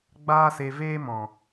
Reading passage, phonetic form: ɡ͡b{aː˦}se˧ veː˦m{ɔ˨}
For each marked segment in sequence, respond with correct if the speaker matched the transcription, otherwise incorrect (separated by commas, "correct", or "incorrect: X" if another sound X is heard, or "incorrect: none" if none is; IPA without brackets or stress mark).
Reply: correct, incorrect: ɔ̃˨